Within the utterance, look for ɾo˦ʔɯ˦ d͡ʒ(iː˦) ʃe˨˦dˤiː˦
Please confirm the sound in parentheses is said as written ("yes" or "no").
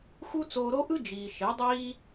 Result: no